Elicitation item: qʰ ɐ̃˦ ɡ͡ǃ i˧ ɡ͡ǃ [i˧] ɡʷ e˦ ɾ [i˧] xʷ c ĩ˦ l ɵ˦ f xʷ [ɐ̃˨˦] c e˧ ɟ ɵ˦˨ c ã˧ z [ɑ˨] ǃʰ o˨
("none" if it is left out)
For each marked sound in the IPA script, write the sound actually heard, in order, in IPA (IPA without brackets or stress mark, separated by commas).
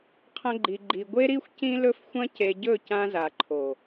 i˧, i˦, ɐ̃˦, a˨